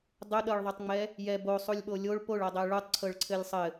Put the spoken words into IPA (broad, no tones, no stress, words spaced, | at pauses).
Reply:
dˤʊɗɤɭðˤɤtˤŋ͡mɛ | jɛ bosˤulʲɓo lʲoɭ poɭɤdˤɛ ɭutˤǀʰɤɭǀʰɘlʲ sˤɘ